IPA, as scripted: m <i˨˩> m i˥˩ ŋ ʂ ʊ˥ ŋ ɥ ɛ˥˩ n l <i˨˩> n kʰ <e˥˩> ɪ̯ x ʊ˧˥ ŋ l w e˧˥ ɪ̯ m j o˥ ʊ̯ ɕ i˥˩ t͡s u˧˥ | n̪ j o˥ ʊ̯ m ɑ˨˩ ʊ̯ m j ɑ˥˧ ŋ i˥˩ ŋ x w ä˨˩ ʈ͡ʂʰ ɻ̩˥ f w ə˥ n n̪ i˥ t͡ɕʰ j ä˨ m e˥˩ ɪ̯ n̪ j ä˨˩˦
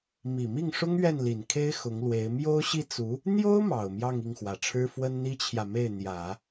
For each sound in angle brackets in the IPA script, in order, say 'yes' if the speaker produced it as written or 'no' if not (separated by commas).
yes, yes, no